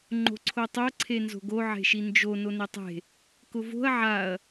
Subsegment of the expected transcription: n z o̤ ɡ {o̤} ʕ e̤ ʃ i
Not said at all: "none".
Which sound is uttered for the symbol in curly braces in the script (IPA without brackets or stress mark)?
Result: o